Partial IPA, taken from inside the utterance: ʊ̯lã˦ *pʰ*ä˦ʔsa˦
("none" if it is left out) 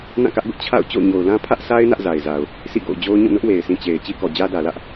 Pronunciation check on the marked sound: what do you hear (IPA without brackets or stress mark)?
pʰ